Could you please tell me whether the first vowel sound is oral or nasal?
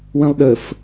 nasal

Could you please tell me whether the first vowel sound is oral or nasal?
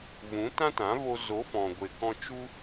nasal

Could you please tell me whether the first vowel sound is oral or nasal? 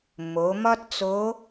oral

